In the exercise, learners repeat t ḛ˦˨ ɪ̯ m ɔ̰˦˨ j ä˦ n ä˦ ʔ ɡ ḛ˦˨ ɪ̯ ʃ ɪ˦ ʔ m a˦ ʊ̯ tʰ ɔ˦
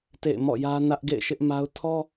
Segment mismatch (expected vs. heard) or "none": none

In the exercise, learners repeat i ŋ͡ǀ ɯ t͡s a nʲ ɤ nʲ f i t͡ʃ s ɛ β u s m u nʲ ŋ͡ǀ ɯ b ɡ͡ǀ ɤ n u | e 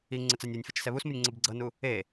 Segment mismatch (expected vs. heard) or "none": none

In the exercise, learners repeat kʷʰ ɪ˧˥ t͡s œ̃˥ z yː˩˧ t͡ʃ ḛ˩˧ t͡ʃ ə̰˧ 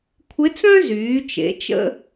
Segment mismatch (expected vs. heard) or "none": none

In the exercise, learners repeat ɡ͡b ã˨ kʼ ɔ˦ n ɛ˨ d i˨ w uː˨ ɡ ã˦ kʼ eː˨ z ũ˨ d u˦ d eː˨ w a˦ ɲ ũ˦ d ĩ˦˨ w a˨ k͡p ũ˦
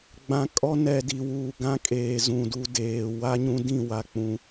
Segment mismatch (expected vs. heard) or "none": none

